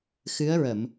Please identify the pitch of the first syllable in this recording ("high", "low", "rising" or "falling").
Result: rising